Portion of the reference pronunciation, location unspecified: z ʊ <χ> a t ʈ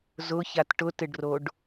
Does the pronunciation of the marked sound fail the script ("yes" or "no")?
yes